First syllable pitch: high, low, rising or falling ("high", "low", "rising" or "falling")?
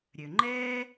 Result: low